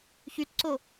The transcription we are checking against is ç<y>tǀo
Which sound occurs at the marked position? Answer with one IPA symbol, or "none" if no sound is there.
y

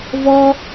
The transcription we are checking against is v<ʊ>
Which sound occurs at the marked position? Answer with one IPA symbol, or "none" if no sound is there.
ɔ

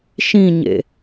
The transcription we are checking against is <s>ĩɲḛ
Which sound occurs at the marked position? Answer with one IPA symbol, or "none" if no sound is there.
ʃ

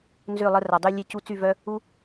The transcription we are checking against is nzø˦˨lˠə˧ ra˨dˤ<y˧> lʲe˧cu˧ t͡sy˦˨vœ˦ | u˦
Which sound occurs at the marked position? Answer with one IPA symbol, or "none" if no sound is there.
y˧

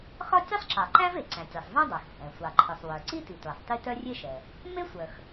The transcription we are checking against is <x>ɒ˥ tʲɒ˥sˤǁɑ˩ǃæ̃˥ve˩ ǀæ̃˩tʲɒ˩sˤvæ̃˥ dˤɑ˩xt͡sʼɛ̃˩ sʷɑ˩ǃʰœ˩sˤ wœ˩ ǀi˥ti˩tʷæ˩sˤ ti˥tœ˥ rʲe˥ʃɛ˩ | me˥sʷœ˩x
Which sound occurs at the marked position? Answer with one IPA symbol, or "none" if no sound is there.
x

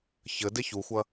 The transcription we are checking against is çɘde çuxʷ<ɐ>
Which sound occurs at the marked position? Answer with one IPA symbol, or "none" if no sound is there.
ɐ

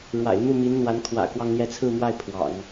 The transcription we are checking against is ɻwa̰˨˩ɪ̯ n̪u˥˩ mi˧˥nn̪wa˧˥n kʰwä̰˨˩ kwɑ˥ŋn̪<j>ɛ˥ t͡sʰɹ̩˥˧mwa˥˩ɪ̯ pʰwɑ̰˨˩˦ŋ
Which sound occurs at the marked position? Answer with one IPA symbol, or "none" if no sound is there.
j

